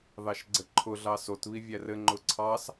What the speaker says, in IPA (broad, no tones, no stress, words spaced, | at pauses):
ðɑʃɡ͡ǀɘǃʰʊɮɑ sotβi vʲærɘ ŋ͡ǃʊǀʰɑs